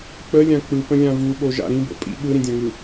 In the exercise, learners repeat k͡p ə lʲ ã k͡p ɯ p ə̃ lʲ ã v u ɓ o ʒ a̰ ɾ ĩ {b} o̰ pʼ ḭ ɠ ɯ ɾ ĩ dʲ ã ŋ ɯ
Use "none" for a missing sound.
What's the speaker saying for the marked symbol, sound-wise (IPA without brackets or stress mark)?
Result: b